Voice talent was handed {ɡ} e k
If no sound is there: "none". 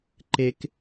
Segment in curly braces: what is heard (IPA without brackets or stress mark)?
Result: ǃ